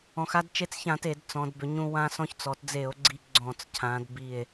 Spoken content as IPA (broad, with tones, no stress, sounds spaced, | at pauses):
ɔ̃˩˧ x a˧ d t͡ʃ e˧ t͡s ç ã˧˩˧ t e˧˩˧ d t͡s ɔ̃˩˧ d b ʏ˩˧ ɲ ũ˧ w ã˧ s ɔ̃˧ ç t͡s ɔ˩˧ t d͡z e˧˩˧ o̯ ɡ͡ǀ i˧ ɡ͡ǀ ɔ̃˧˩˧ t͡s cʰ ã˩˧ d b i˧˩ e̯